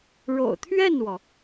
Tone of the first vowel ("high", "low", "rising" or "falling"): low